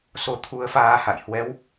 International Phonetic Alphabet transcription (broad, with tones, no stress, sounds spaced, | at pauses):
s o˨˦ t̪ʰ u˨˦ ə̯ f aː˧ h a̰˧˨ j h w ɛ˨˦ w